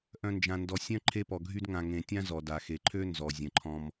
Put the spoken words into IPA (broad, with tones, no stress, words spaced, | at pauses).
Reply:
ʔœ̃˥nd͡ʒã˦ndɔ˦ sʲœ̃˥ǃʰe˦pɔ˨ɡʱy˦d ŋã˨ŋẽ˨tʲã˦ zɔ˩da˩xe˩ǃʰø˦ nzɔ˩zʲə̃˩ǃʰɔ̃˨m